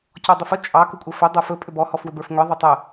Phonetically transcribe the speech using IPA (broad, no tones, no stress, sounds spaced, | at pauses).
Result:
c ɔ dˤ ʏ f ə t͡ʃʼ ɑ k ə kʷʼ ə f ʏ dˤ ə˞ f ɵ pʼ ʏ b ɔ h ɔ f w ʏ b ə˞ f ŋʷ ɛ ðˤ ʏ tˤ ə